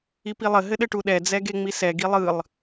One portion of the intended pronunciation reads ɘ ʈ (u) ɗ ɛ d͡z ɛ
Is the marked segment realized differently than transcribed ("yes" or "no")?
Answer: no